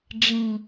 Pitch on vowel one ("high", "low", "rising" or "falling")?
low